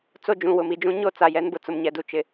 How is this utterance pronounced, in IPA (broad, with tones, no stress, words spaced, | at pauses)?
t͡so˦d͡ʒũ˨wʊ˨m i˨d͡ʒũ˦ɲo˦ t͡sa˨jɛ˦nbʊ˨ t͡sʊ˨mɲɛ˨du˨ t͡ʃɪ˨